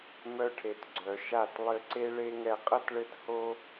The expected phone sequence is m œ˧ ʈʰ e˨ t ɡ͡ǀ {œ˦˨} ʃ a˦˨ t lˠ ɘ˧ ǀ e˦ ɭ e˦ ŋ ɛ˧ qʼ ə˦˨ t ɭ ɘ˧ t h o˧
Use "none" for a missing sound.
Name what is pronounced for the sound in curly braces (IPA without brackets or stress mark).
œ˨